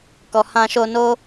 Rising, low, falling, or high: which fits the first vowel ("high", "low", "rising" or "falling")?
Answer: low